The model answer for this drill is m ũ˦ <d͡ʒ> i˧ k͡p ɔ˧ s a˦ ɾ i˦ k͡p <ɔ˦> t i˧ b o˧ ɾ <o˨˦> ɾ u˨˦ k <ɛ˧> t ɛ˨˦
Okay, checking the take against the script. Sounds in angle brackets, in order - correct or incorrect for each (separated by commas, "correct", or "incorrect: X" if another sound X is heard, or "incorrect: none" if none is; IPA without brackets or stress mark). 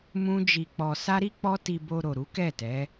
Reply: correct, correct, incorrect: o˨, incorrect: ɛ˦˨